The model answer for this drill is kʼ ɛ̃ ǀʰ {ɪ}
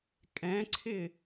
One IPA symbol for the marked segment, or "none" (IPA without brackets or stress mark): ɪ